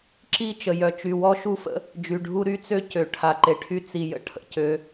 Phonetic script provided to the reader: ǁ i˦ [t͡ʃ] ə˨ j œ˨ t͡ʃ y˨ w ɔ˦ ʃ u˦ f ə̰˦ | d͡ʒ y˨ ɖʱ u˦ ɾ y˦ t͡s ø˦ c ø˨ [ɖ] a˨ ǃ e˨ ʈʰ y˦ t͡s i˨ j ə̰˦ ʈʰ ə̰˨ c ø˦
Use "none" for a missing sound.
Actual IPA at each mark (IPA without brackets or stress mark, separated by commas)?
t͡ʃ, ʈʰ